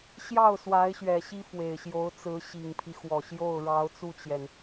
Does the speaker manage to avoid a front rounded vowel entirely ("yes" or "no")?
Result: yes